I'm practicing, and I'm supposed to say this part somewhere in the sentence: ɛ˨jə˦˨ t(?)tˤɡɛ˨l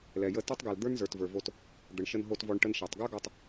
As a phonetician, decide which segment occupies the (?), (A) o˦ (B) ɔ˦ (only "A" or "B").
B